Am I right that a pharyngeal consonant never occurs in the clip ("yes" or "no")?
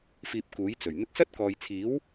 yes